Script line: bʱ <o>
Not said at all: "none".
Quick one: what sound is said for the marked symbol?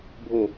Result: o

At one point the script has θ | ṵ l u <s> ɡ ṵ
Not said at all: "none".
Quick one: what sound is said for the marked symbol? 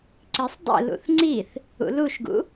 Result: ʃ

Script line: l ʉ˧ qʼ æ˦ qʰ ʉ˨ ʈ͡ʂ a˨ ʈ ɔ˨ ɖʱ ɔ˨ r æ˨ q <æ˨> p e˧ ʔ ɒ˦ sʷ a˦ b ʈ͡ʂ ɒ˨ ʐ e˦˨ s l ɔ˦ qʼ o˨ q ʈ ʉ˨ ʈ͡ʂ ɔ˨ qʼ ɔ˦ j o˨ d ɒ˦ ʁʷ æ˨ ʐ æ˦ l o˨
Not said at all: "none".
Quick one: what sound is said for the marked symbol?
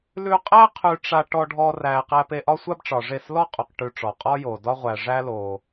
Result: æ˧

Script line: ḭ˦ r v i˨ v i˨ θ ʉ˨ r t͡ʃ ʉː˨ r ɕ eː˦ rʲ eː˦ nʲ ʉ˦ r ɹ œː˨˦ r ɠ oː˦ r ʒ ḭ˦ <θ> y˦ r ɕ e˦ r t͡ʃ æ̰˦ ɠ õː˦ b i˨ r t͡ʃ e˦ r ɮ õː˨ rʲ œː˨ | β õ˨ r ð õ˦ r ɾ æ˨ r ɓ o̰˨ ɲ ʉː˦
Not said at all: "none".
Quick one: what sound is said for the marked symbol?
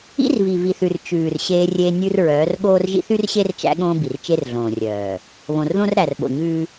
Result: θ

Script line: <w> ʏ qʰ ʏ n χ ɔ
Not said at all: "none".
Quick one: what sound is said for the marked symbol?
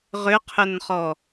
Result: ʁ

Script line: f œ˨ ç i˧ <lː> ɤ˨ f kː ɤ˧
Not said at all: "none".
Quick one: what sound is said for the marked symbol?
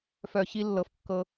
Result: lː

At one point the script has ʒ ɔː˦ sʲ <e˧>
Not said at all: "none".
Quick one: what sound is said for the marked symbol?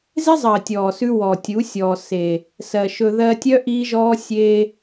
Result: e˧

